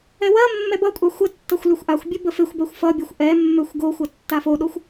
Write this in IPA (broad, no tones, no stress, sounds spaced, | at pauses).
ɛ w ɜ mː ɛ b ʌ kʷʼ a xʷ ə tː ʌ xʷ l ʏ xʷ ʔ a xʷ bʲ ə b ə f e xʷ b ɜ xʷ f ʌ bʲ ʌ xʷ ʔ ɛ mː ø xʷ ɡ o xʷ ʌ tː a f o ɗ o xʷ